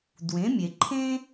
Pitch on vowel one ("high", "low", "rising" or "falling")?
rising